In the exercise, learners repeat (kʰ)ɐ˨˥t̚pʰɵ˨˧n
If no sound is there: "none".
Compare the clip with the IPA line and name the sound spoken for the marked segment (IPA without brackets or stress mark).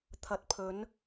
t̪ʰ